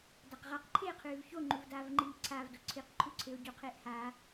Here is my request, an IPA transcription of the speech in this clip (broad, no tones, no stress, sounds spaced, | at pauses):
d a q ʁ a q ǃʰ eː qʰ ʉː v ç o ŋ͡ǃ u v d aː v ŋ͡ǃ iː ǀʰ a v d o ǀʰ i q ǃʰ u ǀʰ e o̯ ɟ u qʰ eː ʔ h aː